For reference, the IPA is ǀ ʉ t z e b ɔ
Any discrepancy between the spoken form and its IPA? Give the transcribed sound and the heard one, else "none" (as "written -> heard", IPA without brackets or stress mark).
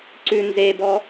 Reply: t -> n